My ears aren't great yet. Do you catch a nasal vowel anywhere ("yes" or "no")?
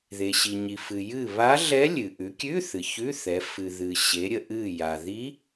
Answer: no